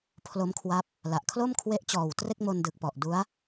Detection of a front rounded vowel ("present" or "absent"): absent